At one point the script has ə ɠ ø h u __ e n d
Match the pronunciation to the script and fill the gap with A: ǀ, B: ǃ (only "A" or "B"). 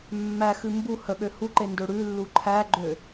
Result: B